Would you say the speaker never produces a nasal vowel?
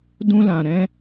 no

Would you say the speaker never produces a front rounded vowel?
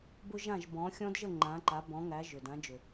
no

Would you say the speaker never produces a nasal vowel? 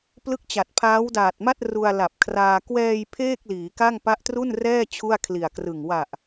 yes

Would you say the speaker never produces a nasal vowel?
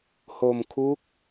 yes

